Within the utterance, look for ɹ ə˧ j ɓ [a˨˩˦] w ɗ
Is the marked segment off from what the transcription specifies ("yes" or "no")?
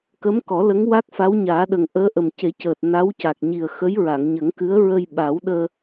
no